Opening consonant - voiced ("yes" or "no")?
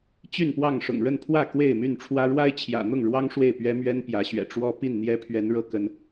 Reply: no